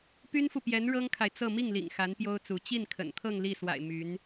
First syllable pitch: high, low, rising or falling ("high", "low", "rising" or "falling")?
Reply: high